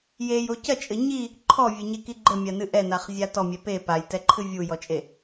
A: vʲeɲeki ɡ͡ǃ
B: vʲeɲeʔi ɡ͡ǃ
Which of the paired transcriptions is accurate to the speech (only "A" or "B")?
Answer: A